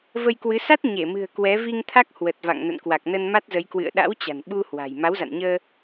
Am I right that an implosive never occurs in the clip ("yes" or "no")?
no